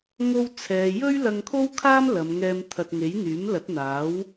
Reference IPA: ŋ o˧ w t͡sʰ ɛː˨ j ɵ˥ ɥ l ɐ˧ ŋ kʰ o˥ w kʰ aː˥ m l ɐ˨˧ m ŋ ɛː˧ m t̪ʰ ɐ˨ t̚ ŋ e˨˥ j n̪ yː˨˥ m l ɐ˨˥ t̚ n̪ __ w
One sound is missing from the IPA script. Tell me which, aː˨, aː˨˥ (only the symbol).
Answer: aː˨˥